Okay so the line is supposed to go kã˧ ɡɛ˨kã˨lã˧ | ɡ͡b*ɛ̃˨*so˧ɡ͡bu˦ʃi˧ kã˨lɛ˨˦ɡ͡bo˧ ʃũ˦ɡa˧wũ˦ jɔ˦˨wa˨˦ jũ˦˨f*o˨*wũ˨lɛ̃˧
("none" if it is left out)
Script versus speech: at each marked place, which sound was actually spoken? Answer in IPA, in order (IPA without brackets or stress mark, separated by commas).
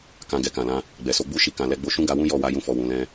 ɛ˨, ɔ˨